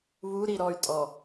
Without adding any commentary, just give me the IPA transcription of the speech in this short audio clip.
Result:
βu ɾiɾɔy̯tʼɔ

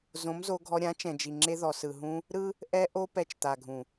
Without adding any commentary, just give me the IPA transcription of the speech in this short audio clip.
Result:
zõ˨˦mzo˧ɡʱɔ˧ ɾʲã˨˦t͡ʃɛ̃˨d͡ʒi˨ŋ͡ǁe˧ ðɔ˨sɯ˨ɦũ˧ | ɾɯ˦ | ʔɛ˧ʔo˧ pɛ˧t͡ʃt̪a˨ɡʱũ˨

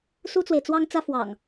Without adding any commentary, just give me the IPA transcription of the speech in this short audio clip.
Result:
su˦t͡swe˨ɪ̯t͡swɑ˦ŋt͡sä˦ fwɑ̰˨˩ŋ

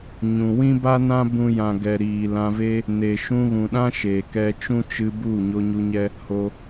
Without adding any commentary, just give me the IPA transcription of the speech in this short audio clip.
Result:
ɲũ˨ wĩ˦ba˦nã˦ bũ˦jã˧ ɡɛ˨ ɾiː˨lã˧ve˦ | ne˨ʃũ˧ ɣũ˨ɗã˦ ʃe˨ kɛ˧t͡ʃũ˦t͡ʃɨ˧bu˦˨ ɲo˧ɲu˧ɲɛ˦ | ho˧

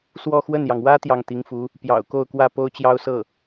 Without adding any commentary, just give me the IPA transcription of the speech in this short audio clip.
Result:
swɔ˥˧xwə˥˩njɑ˩ŋ wä˥ t̪jɑ˥˩ŋt̪i˧˥ŋfu˧˥ | pjɑ̰˨˩ʊ̯ko˥˧ʊ̯kwä˥˩ po˥ʊ̯t͡ɕjɑ˥ʊ̯sɤ˥˩

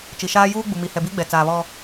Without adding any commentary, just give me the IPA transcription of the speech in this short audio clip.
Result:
t͡ʃi˨ʃaː˦juː˦ ɡ͡bu˨mi˨hɛ˨bi˦ ɡ͡bɛ˨t͡saː˨ βɔ˦

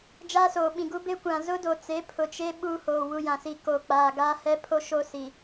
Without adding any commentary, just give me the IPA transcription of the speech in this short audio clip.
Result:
d͡ʒaː˦soː˨ɓĩ˨ɡu˦ be˦kʷã˨ zʊ˦do˨t͡se˨˦ pʰʊ˨t͡ʃe˦ ɓuː˦hoː˨ wu˦jã˨si˦˨ ko˨ k͡paː˨ɡaː˦ hɛ˦pʰo˦ ʃo˦ si˨

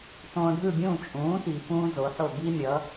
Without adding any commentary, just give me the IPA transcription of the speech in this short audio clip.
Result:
tõː˧ɖʱɯ˥˩bʲũː˥˩ t͡ʃʼũː˩˥ti˩ fũː˥zo˩˥ħo˥˩ bi˥mʲʌ˩˥

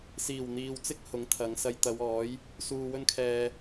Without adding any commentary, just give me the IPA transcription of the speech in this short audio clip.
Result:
siː˨˩wn̪iː˨wt͡sɪ˥k̚ hʊ˨˥ŋt̪ʰɐ˨˧ŋ sɐ˧j t̪ɐ˨˧wɔː˨˥j | suː˧wɵ˥nkʰɛː˧

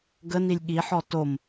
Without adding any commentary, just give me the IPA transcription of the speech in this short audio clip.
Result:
ɡənilʲ ɠiħɔ tom

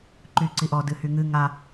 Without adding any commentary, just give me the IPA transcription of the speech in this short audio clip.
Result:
ǃyǀiʔɔ dɨhyŋɨ ŋa

